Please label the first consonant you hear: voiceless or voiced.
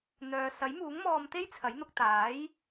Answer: voiced